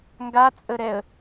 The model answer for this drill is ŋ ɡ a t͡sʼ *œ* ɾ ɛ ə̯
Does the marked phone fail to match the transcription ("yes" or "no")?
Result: yes